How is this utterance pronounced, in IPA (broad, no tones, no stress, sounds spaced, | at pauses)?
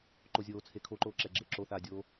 ǃ o zʲ oː t͡sʰ e kʰ o ǃ oː ǁ ɛ ɡ͡ǁ ɪː ǁ o θ aː dʲ o